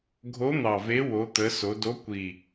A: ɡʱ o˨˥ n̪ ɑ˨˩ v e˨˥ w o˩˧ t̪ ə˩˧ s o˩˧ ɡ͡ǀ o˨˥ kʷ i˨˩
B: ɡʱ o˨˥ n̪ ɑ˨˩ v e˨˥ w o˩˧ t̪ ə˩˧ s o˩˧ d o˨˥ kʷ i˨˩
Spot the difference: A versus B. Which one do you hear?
B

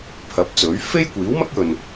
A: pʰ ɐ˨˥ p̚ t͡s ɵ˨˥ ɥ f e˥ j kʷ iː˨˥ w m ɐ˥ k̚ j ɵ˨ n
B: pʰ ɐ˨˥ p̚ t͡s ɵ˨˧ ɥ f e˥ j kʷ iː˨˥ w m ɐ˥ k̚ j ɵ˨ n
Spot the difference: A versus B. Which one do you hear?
A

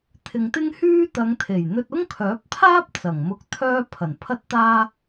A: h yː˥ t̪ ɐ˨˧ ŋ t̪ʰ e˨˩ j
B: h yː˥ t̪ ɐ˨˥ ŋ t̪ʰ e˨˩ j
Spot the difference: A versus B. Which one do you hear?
A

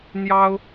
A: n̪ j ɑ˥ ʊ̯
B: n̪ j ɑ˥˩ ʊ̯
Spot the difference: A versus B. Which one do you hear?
A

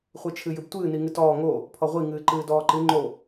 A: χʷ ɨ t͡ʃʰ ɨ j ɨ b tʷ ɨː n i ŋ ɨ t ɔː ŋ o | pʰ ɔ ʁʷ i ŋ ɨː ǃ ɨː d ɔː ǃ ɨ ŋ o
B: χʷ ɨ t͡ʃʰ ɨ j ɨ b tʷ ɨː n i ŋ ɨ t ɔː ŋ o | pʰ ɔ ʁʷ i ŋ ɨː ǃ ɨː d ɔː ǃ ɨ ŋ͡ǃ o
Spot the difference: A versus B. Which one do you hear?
B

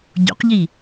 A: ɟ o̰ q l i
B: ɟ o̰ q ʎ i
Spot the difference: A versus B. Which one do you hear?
B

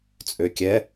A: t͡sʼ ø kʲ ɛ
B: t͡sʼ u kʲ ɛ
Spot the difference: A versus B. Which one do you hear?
A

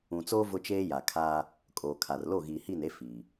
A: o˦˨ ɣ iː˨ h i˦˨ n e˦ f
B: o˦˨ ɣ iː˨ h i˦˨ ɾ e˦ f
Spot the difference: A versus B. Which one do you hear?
A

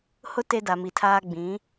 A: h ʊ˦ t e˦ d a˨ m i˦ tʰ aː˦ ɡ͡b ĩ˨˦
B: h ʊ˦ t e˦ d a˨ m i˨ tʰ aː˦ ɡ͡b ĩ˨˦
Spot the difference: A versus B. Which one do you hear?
B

